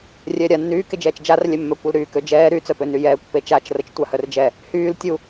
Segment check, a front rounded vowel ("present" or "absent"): present